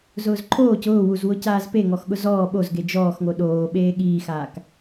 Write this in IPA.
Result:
z ʊː z ǃʰ oː c ʊː w u z w ʊ c aː z p e ŋ ɔ x ɠ ʊ z ɔː ɓ o z ɡ e d͡ʒ ɔː x ŋ o ɗ oː ɓ eː ɠ iː x aː k

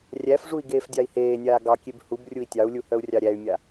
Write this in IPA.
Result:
rʲ æ f ʐ u i̯ ɡ eː f dʲ ɑ i̯ h eː nʲ aː ɡ ɑ kʲ e b h u b rʲ u i̯ tʲ ɑ u̯ lʲ u h œ u̯ rʲ ɑ ɾʲ æ y̯ mʲ a

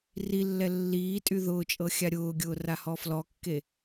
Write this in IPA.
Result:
r i lː ɛ lː iː tʼ y ð ʊː t͡ʃʼ ɤ xʲ a ɾʲ ʊː ɡʲ ʊː r a h ɔ f l ɔ kː e

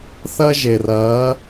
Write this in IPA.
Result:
θ ɐ˦ ʒ e˩ r ɐː˨˦

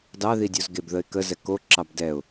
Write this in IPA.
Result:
d ɑ ð i dʲ o z ɡ e b ð ə ɪ̯ k ə z ɛ k o ǁ ɑ b d ɛ ʊ̯

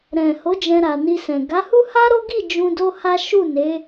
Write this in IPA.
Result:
ɾ ɛ̃˨ h o˨˦ d͡ʒ ɛ̃˧ ɾ a˨ n i˧ s ɛ̃˨ ɡ a˨˦ h u˦ h a˦ ɾ o˦ ɡ i˦˨ d͡ʒ ũ˧ d o˦ h a˦ ʃ u˦˨ n e˨˦

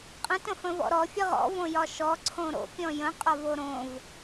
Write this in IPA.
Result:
qʼ ə̃ t ə̃ f ə̃ v ɔ̰ ɾ ɔ fʲ ə ʁ ɔ̰ v õ j ɒ ʃ ɔ ǀʰ õ ɾ o̰ pʲ ɔ̃ j ə̃ qʼ ɒ v o ɾ õ v

